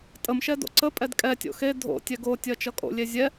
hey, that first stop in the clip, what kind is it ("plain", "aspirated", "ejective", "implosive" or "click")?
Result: ejective